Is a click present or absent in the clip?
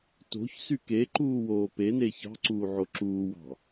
present